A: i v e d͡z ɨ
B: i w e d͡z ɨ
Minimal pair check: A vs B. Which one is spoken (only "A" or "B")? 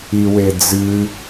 B